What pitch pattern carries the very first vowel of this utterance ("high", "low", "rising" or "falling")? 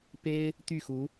high